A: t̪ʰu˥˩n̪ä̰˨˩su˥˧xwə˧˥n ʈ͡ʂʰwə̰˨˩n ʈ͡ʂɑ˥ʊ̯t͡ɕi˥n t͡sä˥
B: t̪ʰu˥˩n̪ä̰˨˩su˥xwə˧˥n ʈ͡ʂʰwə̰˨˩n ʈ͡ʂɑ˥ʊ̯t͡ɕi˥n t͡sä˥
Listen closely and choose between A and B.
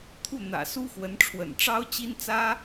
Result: B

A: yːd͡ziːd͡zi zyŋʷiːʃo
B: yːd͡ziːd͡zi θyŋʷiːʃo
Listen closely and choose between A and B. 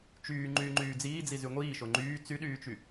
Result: A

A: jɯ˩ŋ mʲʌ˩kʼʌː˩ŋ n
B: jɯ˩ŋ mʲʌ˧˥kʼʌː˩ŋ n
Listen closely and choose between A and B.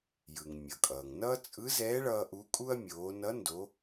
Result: A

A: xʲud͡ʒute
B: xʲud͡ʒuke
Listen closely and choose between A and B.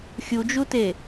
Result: A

